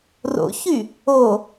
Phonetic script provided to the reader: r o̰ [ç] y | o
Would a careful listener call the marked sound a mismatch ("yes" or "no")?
no